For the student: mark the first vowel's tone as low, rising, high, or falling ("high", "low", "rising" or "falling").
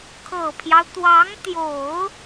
low